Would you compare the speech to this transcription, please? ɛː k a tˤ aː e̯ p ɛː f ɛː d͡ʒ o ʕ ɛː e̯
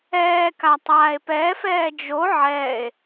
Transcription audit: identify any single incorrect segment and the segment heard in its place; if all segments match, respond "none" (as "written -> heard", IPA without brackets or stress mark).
none